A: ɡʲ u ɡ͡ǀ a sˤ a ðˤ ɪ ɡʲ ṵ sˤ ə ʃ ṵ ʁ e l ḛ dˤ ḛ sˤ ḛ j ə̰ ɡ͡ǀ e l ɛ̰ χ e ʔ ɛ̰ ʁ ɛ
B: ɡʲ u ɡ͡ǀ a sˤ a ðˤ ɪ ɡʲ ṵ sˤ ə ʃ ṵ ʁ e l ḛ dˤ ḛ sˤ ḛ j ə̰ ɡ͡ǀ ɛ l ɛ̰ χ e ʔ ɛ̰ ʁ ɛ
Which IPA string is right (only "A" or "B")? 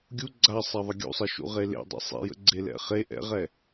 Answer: A